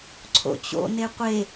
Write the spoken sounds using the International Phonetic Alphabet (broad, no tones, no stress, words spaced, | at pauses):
ǀʰo̰t͡ɕo̰ neqʷe